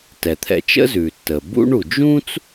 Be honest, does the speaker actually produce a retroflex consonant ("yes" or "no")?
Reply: yes